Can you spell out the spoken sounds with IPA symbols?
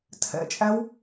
tʰ ɛ̰ t͡ʃʼ æ w

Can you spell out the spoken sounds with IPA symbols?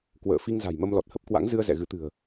k w ə̰ː˧˨ f i˧ ŋ z a̤˨˩ j m ə˧ m l ɔ˨˩ t̚ h ə˦˥ p̚ k w a̰˧˥ ŋ z ɨ˧ ə̯ z ɛ̰˧˨ ɣ ɨ˨˦ t̪ ɨ̤˨˩ ə̯

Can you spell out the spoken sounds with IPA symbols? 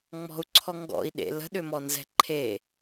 ŋ͡m ɔ̤ u̯ ǀʰ ɔ ŋ ɡ ɔ̰ i̯ ɗ ḛ l ə̤ ɗ ʏ m ɔ n z ɛ̤ ǃʰ e

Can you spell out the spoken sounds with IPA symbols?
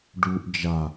ɖ u ʔ d͡ʒ a

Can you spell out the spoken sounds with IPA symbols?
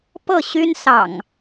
p ɤ˥˨ ɕ y˦ n s ɑ̰˨˩ ŋ

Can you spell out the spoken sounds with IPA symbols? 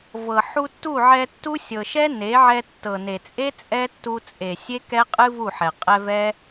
v ɤ˨ ħ u˧ tː u˦˨ ʕ ɛ˧ tː u˦ sʲ ɤ˨ ʃ ɛ˦ n e˨˦ ʕ ɛ˧ tː ɤ˨ n e˨ t͡sʼ e˦ t͡sʼ ɛ˦ tː u˧ t͡sʼ e˨ sʲ e˦ k ɛ˦ qʼ ɨ˦ v u˦˨ ħ ɛ˨ qʼ ɛ˧ v ɛ˦

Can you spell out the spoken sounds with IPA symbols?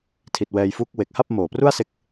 tʰ i˨˩ t̚ w ɛː˧ j f u˦˥ k̚ w e˨˩ k̚ h a˥˩ p̚ m oː˨˩ p r u˥˩ a̯ s e˥˩ k̚

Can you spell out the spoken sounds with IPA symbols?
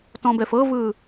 t ɔ̃ b ɛ f ɤ v ɯ

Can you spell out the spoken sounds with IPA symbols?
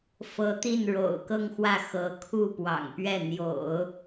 f ɤ˧˥ t̪ i˥˩ n ɻ o̰˨˩ ʊ̯ k ɤ˥˧ ŋ x w ä˥˩ x ɤ˧˥ kʰ u˥˩ p w ɑ̰˨˩ ŋ p ɥ ɛ˥˩ n̪ j o̰˨˩˦ ʊ̯

